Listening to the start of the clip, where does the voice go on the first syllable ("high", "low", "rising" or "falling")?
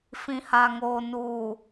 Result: low